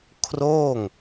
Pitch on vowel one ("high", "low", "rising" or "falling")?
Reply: falling